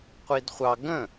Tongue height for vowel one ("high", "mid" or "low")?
high